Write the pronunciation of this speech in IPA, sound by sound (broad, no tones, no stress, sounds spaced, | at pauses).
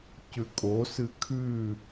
c ʉ kʼ o s ɨ kʰ ʉ